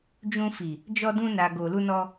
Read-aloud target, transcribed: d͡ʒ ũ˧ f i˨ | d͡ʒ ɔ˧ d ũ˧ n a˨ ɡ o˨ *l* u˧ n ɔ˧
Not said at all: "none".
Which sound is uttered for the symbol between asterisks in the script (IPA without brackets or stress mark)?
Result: l